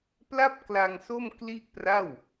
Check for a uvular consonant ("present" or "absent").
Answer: absent